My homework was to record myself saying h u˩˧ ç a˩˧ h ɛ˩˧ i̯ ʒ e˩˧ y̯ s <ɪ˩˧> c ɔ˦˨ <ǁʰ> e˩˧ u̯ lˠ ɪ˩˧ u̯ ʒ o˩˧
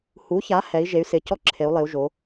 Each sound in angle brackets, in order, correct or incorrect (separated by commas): correct, correct